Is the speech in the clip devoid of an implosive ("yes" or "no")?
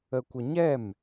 yes